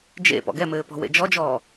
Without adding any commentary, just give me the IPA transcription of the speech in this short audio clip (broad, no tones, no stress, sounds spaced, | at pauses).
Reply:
d͡ʒ ḛ p ɔ̰ ɡ ɛ m ɘː p ɔ̤ w ḛ d͡ʒ ɔ d͡ʒ ɔː